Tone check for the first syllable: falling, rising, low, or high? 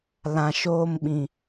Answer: low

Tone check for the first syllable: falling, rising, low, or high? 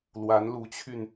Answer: rising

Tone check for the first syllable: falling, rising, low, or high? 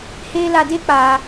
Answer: high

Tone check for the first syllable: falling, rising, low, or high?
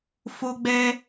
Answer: high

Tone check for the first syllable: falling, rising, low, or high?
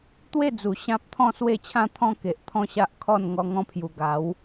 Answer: falling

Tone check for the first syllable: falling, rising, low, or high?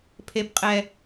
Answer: low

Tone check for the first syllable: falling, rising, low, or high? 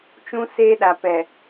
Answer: high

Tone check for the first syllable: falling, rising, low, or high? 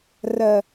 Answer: low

